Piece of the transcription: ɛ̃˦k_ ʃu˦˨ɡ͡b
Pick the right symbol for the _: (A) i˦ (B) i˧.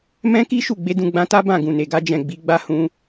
A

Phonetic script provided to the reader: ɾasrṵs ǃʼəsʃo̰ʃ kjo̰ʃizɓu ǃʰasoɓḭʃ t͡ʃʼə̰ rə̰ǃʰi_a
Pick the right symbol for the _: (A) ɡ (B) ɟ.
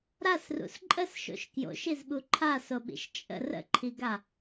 A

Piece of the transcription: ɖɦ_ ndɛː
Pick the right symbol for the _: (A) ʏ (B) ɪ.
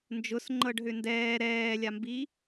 A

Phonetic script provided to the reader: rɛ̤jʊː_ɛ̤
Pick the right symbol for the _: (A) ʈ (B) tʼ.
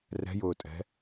B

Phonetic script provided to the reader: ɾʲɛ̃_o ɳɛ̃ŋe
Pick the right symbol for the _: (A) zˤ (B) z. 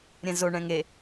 B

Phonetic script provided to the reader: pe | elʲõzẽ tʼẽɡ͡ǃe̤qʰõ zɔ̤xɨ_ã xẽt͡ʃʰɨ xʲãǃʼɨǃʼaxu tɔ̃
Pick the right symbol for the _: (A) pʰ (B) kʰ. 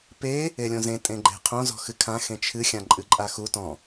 B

